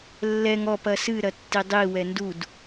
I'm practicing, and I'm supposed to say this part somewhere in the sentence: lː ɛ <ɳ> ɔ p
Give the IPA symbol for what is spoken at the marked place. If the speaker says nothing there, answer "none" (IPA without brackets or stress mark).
ŋ